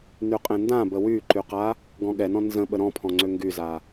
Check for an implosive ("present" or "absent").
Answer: present